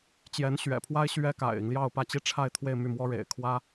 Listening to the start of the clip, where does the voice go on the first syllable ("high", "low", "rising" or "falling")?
rising